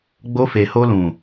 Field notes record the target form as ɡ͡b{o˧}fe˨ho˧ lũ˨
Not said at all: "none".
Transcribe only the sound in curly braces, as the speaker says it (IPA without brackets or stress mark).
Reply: o˧